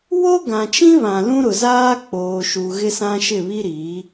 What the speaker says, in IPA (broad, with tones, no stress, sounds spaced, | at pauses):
w o˦ ɡ ã˨ t͡ʃ ĩ˦ β ã˨ l ũ˦ ɾ ʊ˨ z aː˦ k͡p oː˨ ʃ u˨ ɣ ɪ˦ s ã˦ ʃ ɪ˦˨ β i˦ ɾ i˨˦